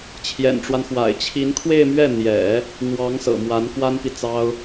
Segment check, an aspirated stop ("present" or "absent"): present